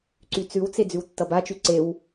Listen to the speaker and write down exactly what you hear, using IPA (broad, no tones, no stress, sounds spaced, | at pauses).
ǀ y t͡s ʉ w t͡s e d͡z ʉ w tː ʌ b a t͡ʃ y ǀ e w